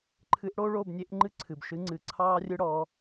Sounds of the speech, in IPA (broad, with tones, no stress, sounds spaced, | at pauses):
ǃʰ ɨ˧˥ ʔ ɽ o˥ ɭ o˥˧ b nʲ e˧˥ ʔ ŋ͡ǃ ɨ˥ ǀʰ ɨ˨ b ʃ ɨ˧˥ ŋ͡ǀ ɨ˨ ǀʰ ɑː˥ rʲ ɨ˥ ɽ ɔ˧˥